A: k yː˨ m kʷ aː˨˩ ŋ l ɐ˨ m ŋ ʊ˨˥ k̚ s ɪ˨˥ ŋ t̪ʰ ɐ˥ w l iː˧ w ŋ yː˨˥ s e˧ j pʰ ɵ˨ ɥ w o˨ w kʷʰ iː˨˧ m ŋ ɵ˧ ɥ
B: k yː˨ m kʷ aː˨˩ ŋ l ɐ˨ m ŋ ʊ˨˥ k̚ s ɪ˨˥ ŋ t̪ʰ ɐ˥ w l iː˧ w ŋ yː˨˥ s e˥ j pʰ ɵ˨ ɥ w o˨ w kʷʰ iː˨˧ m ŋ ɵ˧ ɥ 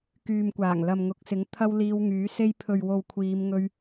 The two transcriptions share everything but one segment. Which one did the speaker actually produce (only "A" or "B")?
B